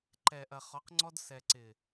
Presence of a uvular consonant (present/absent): present